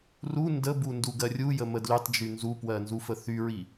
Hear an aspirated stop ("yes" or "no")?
no